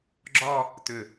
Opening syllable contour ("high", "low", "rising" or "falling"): falling